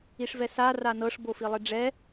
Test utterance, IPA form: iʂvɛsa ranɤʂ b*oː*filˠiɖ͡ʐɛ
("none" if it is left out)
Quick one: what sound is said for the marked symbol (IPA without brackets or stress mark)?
o